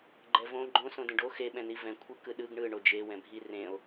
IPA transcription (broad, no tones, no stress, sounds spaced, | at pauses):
ɡ͡ǃ ɛ v õ ɡ͡ǃ õ s õ d ẽ ɖ o x e ɓ ɛ̃ n i v ɛ̃ kʷʰ ɯ k ɯ ɗ ɯ ɡ ɳ ɯ ɳ o d͡ʒ e w ɛ̃ bʱ i r ẽ o̯